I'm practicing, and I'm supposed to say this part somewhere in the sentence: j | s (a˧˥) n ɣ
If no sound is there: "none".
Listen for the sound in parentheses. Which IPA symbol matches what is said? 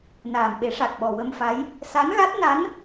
a˧˥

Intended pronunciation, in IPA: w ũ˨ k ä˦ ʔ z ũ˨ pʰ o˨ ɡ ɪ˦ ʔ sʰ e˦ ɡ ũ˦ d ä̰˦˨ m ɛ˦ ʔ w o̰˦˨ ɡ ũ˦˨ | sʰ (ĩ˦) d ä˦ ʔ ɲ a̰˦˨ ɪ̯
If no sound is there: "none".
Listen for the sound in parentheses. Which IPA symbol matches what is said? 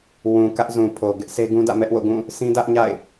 ĩ˦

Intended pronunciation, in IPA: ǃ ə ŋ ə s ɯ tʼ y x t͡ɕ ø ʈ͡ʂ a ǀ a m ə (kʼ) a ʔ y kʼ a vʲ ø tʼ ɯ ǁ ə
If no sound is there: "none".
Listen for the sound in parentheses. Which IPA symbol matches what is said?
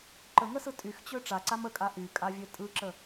kʼ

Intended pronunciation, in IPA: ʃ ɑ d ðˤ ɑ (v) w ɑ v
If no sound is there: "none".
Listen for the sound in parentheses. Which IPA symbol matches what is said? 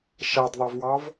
v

